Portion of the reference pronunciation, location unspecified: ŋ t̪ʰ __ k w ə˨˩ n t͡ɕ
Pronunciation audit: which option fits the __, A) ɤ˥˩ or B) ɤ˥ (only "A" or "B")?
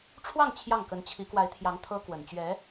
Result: B